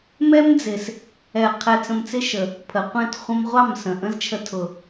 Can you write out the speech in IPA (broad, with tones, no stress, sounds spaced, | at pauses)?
m ɛ˦ m d͡z ɪ˨ s | ɛ˨ qʰ ɛ˧ t͡s ə̃˧ m t͡s ɪ˦ ʃ ə˨ | pʰ ə˨ qʷ ɛ̃˦˨ t χʷ ə̃˧ m ʁʷ ɑ˦˨ m s ə̃˨ ʔ ə̃˦ z t͡ʃʰ ə˧ tʰ ʊ˨